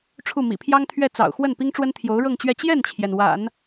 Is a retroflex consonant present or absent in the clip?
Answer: present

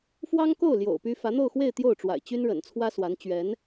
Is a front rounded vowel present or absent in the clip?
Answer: present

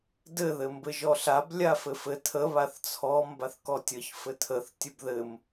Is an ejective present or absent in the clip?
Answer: absent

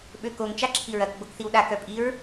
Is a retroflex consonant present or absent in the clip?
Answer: absent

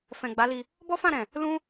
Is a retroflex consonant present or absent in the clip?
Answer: absent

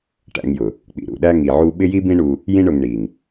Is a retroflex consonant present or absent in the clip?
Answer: present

